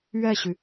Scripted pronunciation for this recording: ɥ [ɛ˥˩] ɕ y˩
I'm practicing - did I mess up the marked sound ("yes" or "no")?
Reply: no